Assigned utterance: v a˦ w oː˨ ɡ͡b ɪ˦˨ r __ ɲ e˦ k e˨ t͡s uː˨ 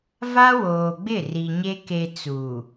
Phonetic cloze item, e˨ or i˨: i˨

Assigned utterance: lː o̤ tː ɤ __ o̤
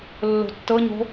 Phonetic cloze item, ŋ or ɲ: ɲ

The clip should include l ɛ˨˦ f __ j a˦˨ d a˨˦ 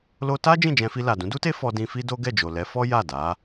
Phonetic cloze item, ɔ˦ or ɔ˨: ɔ˦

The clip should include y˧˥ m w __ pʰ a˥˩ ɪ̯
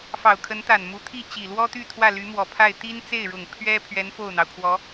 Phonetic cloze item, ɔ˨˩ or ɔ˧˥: ɔ˨˩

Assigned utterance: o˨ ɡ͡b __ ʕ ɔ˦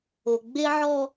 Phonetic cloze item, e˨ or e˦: e˦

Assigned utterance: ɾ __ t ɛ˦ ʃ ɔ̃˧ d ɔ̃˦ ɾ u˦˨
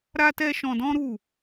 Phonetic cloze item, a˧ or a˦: a˦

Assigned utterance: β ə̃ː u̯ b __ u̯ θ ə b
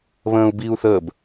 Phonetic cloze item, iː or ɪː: iː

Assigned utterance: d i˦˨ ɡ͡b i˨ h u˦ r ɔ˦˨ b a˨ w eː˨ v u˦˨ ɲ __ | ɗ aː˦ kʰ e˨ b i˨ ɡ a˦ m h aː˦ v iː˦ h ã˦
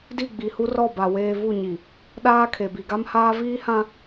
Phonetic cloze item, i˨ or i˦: i˨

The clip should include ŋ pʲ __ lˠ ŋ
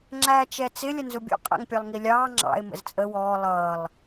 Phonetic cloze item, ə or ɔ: ɔ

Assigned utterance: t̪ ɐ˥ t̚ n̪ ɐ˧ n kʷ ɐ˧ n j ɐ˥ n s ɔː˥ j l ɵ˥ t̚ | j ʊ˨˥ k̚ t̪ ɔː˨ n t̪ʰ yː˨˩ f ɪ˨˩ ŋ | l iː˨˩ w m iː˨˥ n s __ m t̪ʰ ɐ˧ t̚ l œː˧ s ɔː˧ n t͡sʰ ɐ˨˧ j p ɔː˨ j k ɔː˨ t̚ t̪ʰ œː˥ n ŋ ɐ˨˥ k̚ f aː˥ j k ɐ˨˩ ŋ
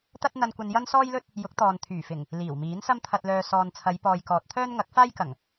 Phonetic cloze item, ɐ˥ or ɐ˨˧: ɐ˥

